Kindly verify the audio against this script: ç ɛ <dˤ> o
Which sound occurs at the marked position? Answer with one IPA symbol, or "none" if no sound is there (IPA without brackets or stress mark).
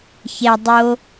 dˤ